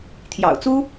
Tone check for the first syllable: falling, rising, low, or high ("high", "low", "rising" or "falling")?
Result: low